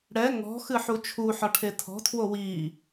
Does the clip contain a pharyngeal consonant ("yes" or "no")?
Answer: yes